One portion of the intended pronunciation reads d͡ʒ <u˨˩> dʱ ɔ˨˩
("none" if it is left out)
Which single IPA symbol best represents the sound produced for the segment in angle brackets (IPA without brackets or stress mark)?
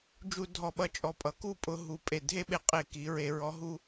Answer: u˧˩˧